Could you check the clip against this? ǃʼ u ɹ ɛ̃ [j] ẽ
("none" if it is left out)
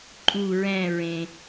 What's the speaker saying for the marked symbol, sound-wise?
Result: ɹ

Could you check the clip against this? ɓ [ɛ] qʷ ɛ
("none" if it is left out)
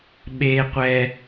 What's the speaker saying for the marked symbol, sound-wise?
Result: e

